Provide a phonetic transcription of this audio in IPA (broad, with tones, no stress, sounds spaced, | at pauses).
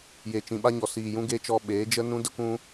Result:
j e˨ t͡ʃ ĩ˨ ɓ a˧ ɲ ɔ˨ s iː˨ j ũ˧ ɡ e˧ t͡ʃ ɔ˧ ɓ eː˨˦ d͡ʒ ə˦ n ũ˦ d ə˦ kʷ ũ˦